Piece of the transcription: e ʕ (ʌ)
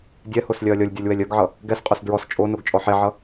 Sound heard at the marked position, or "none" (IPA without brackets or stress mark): ʌ